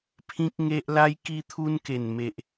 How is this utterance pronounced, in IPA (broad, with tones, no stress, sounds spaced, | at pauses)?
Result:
pʰ ĩ˦ k̚ ŋ e˦ ʔ l a˦ j k i˦ t̪ʰ u˦ n k e˨˩ n m e˨ ʔ